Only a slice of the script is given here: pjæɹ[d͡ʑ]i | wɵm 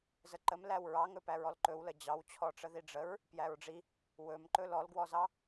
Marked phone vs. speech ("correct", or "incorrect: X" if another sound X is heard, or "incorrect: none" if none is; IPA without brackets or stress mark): incorrect: ɖ͡ʐ